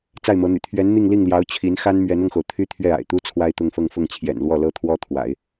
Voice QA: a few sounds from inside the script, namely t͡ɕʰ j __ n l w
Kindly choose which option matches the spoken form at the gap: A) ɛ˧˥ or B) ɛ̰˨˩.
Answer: B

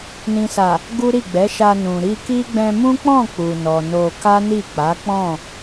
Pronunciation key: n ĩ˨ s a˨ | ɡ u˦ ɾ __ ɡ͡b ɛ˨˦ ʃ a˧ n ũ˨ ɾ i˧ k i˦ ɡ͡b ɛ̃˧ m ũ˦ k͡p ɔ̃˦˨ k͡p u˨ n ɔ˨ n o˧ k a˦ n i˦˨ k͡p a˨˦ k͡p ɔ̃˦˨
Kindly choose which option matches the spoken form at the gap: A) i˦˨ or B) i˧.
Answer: A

